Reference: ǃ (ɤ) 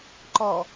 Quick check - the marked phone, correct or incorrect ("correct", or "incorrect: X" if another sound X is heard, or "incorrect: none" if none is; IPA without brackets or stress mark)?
incorrect: ɔ